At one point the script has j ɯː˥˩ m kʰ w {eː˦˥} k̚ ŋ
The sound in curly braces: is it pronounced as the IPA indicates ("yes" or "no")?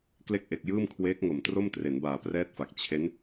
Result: yes